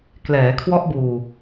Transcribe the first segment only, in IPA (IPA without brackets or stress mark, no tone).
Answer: k